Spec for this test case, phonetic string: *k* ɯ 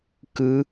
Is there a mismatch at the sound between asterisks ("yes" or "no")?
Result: no